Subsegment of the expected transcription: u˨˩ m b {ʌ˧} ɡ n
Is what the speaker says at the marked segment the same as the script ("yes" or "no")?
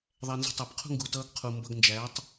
yes